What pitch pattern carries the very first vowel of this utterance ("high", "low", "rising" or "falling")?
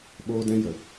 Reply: high